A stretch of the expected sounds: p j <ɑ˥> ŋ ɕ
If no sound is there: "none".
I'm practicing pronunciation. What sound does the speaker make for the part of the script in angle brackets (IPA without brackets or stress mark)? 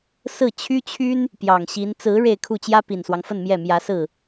ɑ˨˩